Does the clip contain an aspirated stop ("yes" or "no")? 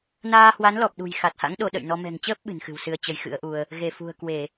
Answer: no